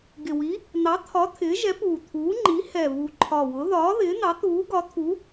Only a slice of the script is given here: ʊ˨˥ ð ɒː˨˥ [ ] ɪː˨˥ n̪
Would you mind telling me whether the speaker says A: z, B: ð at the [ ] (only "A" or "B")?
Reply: B